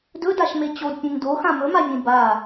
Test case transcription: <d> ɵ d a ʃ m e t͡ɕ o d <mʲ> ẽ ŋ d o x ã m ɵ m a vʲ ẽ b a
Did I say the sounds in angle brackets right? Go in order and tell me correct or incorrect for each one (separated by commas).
correct, incorrect